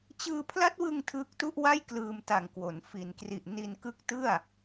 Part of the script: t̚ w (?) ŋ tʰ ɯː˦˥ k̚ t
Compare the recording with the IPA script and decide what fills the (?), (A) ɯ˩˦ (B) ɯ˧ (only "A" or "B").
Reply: B